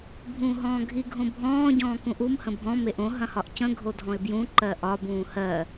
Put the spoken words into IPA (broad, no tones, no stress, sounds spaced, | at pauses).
bʱ ũː ɦ ɔ̃ː ɡʱ i ɡʱ õ bʱ ɔ̃ː ɟ ɔ̃ː k ũ ʔ u m h ə̃ bʱ ɔ̃ m e ʔ õ ɦ ɐ̃ h ɒ ʔ c ə̃ ɡʱ o dʱ ɔ̃ ɪ̯ b j ũ ǃ ɜ ʔ ɒ b ũː h ɜ